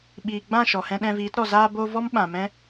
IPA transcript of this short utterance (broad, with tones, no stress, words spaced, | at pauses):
ɓiː˨ ɡ͡bã˦˨ʃɔ˨hɛ̃˧ ɗɛ̃˧viː˨˦tɾɔ˨ zaː˧bo˧ vɔ˦mɓã˨mɛ̃˦